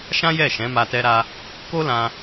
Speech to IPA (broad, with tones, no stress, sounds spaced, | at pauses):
ʃ ã˦ j ɛ˦˨ ʃ ɛ̃˨˦ m a˧ t ɛ˧ ɾ a˧ | k o˦ l ã˧